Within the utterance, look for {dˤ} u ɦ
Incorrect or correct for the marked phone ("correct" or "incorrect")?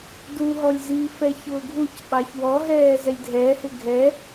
incorrect